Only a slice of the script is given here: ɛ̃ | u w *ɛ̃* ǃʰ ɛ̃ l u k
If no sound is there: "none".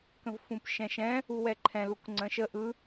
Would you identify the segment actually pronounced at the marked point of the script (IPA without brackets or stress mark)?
ɛ